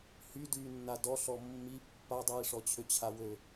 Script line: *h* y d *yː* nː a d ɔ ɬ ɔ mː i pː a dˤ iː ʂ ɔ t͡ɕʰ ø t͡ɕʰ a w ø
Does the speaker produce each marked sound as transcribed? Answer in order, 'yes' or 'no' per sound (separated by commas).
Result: yes, yes